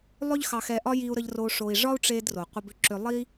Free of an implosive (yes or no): yes